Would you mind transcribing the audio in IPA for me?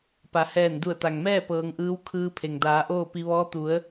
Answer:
pa˩˧hɛː˧˩n du˧˩ə̯t̪a˩ŋmɛː˥˨ pɤː˩˧ŋʔɯː˧˥w kʰɯː˧pʰe˩ŋ daː˩˧ ʔoː˥˨pi˧ ʋɔː˧˥ t̪u˩˧ə̯

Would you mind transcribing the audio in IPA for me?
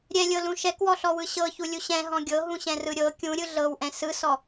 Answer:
ɾʲɛlʲɤlũ ʃɛkwɔɬɔwɯ ɕɤçulʲu ɕɛ̃ɦɔ̃ ɡʲɤɦũɕɛ̃rɯ ɾʲɤ kʲũɾʲɯ ɮɤwʔɛ̃ sɯsɔ

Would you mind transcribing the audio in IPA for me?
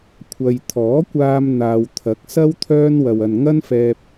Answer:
kʷʰɐ˨jt̪ʰɔː˨˥kʷaː˧m n̪aː˨wt̪ʰɐ˨˥k̚sɐ˥w t̪ʰœː˥n wɐ˧wɐ˧n ŋɐ˥nfɛː˧p̚

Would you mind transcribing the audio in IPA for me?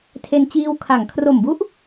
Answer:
tʰe˧nt͡ɕiː˧w kʰa˩˦ŋkʰro˨˩mbu˦˥ʔ

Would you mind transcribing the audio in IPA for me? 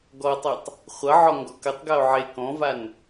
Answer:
ɡɔtˤitˤ | χʷʌʕɔ ŋɡɔkətˤɡao̯ ʕe kɔ̃van

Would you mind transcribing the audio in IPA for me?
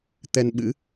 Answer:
t̪ɛ˧n ɓɨ̰˧˥

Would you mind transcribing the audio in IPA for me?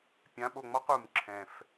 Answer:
pʲã˨˦ɓo˨ŋ͡mɔ˦q u˨mǁʰɛ̃˨f

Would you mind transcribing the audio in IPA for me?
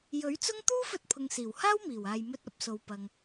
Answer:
jɵ˨˥ɥt͡sʊ˥ŋ t̪uː˥fɵ˧t̚pʰʊ˨ŋ siː˨˩whaː˥wmiː˨˩waː˨j mɵ˧t̚ ɐ˨˥p̚so˨w pɐ˨ŋ

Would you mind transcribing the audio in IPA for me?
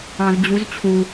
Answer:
ɑ̃˧zd͡ʑu˧˥zt͡ɕʰu˧

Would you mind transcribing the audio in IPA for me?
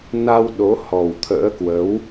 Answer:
na˧w ɗo˨˦hɔ˨˩w t̪ʰə̰ː˧˥kwə˨˦w

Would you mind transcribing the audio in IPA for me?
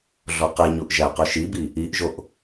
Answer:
ɮɔqeɲuʔ ʒæqɵʃibi | iʔʒoʔ

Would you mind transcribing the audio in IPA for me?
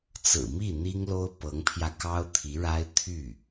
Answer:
t͡sɹ̩˨˩mi˥˩ n̪i˥ŋlo˥ʊ̯pɤ˧˥ŋpʰjä˧ kɑ˥ʊ̯t̪ʰi˧˥ɻa˥ɪ̯ t̪ʰy˥˩

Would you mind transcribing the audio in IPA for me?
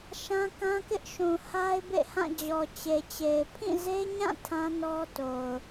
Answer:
ʃã˦kã˦kɪ˦ʔʃũ˨ ha˦ɪ̯bḛ˦˨hã˦˨ d͡ʑɔ˨t͡ɕe˨t͡ɕe˨ɪ̯ pʰĩ˦˨ze˦ɲã˦˨ tʰã˦nɔ˦to˨ʊ̯

